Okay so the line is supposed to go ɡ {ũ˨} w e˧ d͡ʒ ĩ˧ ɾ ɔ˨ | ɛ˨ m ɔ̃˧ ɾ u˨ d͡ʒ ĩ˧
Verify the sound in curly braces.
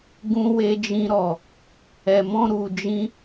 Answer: incorrect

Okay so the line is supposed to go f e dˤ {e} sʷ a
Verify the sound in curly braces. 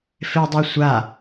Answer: correct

